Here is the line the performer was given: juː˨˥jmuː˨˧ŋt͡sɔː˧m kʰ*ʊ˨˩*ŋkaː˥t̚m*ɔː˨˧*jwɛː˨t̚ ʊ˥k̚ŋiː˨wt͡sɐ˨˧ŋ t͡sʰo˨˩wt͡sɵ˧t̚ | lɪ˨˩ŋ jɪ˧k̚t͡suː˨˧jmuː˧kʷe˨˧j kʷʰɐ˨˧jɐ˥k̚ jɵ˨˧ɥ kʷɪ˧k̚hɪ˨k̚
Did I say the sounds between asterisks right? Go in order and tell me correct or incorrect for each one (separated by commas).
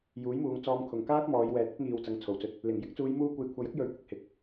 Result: correct, correct